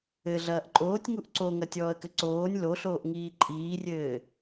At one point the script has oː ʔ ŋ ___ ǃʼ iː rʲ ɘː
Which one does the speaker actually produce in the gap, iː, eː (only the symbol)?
iː